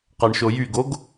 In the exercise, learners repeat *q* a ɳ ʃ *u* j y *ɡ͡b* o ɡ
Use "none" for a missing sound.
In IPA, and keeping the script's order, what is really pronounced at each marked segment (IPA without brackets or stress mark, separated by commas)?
q, o, ɡ